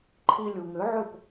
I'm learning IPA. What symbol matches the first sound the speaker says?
ǃʰ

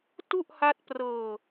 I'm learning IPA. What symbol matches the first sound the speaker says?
t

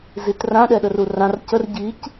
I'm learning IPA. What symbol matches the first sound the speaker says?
z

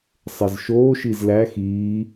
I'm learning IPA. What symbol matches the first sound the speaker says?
sˤ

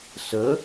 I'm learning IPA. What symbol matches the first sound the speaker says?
s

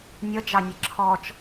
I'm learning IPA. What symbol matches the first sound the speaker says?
nʲ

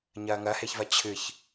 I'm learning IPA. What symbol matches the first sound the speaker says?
ɲ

